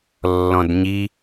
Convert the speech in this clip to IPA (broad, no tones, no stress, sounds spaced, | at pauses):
lː ɔ̃ d ɲ i